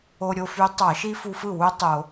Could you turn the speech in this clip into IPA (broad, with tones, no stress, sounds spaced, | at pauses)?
o˧ ɾʲ o˧ f y˧˥ tˤ ɑ˧˩˧ ʃ i˥ f u˧ f ɯ˥˩ w u˥ tˤ o˧˩˧